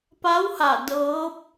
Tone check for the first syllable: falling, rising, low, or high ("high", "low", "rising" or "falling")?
rising